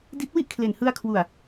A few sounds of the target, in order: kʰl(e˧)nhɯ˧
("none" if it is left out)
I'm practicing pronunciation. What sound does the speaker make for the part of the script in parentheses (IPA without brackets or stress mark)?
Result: e˨˩